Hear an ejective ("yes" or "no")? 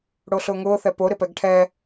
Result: no